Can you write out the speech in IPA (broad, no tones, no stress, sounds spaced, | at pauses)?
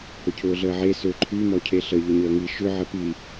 h ʊ cʰ ʊː ɮ əː ʕ e s ø ǃʰ y m ɔ cʰ e ɬ ə ʎ ə ɲ əː ŋ i ʃ ʏ ʕ ə p i